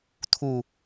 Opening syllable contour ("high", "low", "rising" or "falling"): low